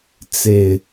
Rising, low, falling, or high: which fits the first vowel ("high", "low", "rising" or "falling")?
low